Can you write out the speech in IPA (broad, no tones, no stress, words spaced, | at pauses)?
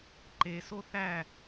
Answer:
ǃeso θæ